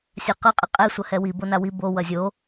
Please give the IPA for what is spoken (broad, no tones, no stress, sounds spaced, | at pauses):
sʲ a q ʌ qʼ ɛ qʼ ɛ sʷ ɐ h ɛ w i b o n a w i b o w ɐ zʲ o